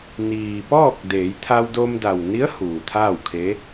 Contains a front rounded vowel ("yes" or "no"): no